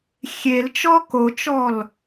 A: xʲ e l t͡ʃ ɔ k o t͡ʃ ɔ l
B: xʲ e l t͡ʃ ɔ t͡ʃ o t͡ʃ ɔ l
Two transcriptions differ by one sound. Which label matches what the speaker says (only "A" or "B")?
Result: A